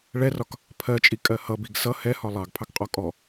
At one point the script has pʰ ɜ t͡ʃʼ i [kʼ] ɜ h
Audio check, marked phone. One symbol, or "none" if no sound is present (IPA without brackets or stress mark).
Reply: kʼ